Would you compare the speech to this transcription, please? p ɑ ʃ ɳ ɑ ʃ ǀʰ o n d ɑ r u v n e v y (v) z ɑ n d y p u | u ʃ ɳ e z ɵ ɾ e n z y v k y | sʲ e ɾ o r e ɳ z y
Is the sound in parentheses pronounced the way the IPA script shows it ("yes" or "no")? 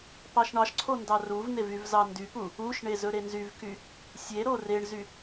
yes